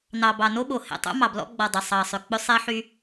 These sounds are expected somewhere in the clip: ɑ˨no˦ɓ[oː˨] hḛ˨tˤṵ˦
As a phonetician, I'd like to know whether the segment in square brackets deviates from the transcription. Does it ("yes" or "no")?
yes